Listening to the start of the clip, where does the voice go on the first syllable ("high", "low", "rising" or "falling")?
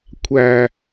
low